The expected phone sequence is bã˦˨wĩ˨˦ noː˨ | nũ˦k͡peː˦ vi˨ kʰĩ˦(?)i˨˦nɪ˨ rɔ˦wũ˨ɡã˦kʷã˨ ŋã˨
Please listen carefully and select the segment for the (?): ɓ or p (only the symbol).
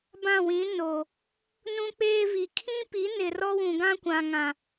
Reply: p